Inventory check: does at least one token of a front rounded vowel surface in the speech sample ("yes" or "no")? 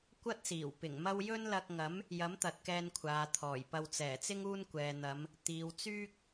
yes